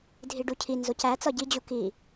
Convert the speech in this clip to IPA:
dʱiɖucʰinzoc æ t͡sɒɟid͡ʑu ki

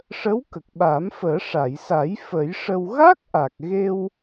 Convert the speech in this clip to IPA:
ʂə˧˥w kə˨˩k̚ɓaː˨˩˦mfəː˨˩˦ ʂa˨˩˨jsa˨˩˦j fə˨˩˦jʂə˧w ɣa˦˥k̚ʔa˨˩k̚ɣe˧w

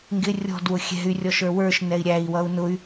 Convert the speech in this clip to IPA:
ŋɡɪ rʲɔ̤dwʊ xʲɛ̤y̯rʲɔʃ ə˞wə˞ʃnɛi̯ ɾʲæi̯wʌu̯ nʊy̯

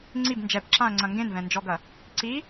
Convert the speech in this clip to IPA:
ŋ͡ǀib nd͡ʒɛbǁãɐ̯ŋ͡ǀɐ̃ ŋɡẽnvɛ̃nd͡ʒɔɡɐ | ǀi

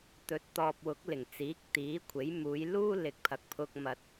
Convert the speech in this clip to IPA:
t̪ɵ˨˥t̚t̪ɔː˨p̚wʊ˨˥k̚ lɪ˨˩ŋt͡siː˨˥k̚ t̪iː˨˥kʷʰe˨˥j muː˨˧jluː˥ lɪ˨k̚pʰɐ˨k̚pʰʊ˧k̚ mɐ˧t̚

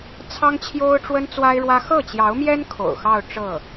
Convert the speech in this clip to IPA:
t͡sʰɑ˥ŋt͡ɕʰjo˥ʊ̯ʈ͡ʂwə˥n t͡swa˥ɪ̯ɻwä˥ xɤ˥˩t͡ɕjɑ˧˥ʊ̯mjɛ˥n kʰo̰˨˩ʊ̯xɑ˥˧ʊ̯ ʈ͡ʂɤ˥˩

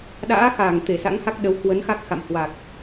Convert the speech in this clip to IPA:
ɗa̰ː˧˥ xaː˧˩ŋt̪e˧˩ sa̰˧˥ŋha˦˥k̚ɗə˨˦w kwə˨˦nxa˦˥k̚xa̰˧˨m hwa˨˩k̚

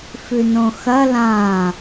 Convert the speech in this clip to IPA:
fʉnõxɐ lã

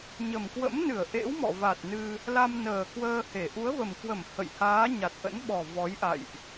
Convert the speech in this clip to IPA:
ɲə˨˩mkwə̰˧˥mnɨ˧˩ə̯ ʔḛ˧˥wmɔ̰˧˨va˨˩t̚ nɨ˧ | la˧mnəː˨˩kwəː˧he˧˩ ʔu˨˦ə̯və˨˩mkwə˧˩m hə̰˧˨j haː˨˦ ɲa˨˩t̚ʔə̰˧˥nɓɔ˨˩ vɔ˨˦jʔa̰˧˨jʔ

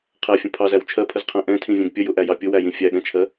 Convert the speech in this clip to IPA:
qʰæfʲə̃ pʰɑzæw t͡ʃʰɜpʰəzqʰæ̃ ʔɛ̃tʰĩvʲɛ̃ɡ pʲəjʊʔæjɑ pʲʊwæjĩ fʲæɠɛ̃t͡ʃʰɜ

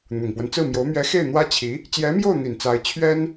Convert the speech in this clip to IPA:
n̪ʊ˨˩ŋpwə˦nt͡sɹ̩˥˩mjo˧˥ʊ̯ mɥɛ˧˥ xe˥˩ɪ̯ n̪wä˥t͡ɕʰi˧˥ | t͡ɕjɛ˧˥mjo˥˩ʊ̯n̪i˨˩n t͡sa˧˥ɪ̯t͡ɕʰɥɛ˥n

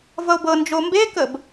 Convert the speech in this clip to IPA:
vʌo̯bɤnd͡ʒo mbekəb

